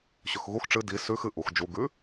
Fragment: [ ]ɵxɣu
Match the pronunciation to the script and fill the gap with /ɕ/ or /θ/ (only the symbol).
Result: ɕ